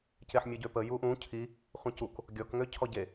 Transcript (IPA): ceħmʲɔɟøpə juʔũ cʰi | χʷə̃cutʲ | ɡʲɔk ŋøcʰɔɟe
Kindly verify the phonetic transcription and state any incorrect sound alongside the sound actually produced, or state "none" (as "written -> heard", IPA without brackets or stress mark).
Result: tʲ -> k